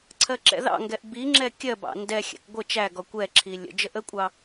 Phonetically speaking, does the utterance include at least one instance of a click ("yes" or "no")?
yes